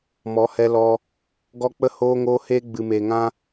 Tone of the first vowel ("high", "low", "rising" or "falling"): rising